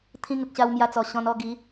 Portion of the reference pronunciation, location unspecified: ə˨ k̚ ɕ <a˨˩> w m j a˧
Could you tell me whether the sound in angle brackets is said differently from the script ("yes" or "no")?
yes